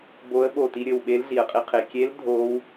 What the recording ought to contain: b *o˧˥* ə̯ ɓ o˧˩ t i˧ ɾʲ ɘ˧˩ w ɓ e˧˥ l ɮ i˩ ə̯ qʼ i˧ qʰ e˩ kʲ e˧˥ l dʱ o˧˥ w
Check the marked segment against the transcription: correct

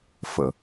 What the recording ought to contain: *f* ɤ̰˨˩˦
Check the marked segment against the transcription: correct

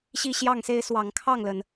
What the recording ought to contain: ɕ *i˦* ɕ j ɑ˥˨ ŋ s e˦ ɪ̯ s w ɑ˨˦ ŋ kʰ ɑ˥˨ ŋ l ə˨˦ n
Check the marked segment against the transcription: correct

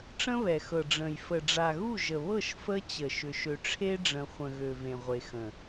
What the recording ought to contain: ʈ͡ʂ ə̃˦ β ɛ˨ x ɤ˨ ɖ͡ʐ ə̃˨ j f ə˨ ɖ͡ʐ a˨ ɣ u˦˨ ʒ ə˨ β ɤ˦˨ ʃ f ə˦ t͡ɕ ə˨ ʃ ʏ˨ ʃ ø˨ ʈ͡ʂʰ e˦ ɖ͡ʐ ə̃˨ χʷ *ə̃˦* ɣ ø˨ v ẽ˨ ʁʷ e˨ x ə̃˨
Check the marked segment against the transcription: incorrect: ə̃˨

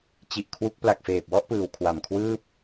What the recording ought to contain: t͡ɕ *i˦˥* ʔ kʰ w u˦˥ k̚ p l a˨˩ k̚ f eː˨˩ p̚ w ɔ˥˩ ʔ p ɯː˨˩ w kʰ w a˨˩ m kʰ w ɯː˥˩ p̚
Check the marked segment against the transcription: incorrect: i˨˩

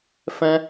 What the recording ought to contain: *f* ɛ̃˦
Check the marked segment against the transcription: correct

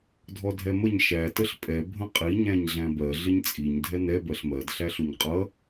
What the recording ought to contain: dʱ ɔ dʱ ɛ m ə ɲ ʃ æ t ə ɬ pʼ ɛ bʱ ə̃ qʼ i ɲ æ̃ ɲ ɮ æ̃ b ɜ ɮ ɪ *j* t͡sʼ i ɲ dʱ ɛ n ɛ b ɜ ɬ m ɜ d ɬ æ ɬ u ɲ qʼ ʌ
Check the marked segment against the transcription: incorrect: ɲ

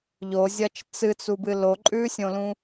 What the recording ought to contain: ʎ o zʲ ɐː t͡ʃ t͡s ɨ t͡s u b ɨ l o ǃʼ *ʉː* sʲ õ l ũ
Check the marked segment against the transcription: correct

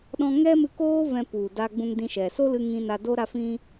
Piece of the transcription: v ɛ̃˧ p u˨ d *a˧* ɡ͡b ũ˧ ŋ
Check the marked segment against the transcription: correct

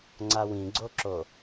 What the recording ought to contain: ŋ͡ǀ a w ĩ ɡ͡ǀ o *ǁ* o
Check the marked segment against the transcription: correct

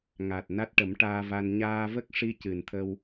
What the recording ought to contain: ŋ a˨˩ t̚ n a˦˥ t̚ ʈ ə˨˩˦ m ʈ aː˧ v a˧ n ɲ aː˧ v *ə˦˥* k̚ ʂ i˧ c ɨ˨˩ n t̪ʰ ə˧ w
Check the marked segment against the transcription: correct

